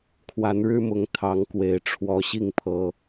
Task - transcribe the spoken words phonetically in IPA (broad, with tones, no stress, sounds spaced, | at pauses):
kʰ w a˨˦ n ɻ ɻ̩˦ m ʊ˨˦ ŋ t̪ʰ ɑ˨˦ ŋ k w e˨˩ ɪ̯ ʈ͡ʂʰ w ɔ˨˦ ɕ i˥˨ ŋ pʰ ɤ˨˦